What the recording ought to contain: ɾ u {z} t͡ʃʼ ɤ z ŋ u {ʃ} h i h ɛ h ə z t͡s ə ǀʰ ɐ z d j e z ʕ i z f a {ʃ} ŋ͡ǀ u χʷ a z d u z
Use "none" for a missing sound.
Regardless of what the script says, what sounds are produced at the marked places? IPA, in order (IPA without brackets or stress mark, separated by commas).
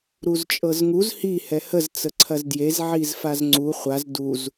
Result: z, z, z